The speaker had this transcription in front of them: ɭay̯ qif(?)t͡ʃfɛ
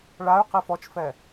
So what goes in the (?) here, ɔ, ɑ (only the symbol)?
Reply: ɔ